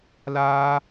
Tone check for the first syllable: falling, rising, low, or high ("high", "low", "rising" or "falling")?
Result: high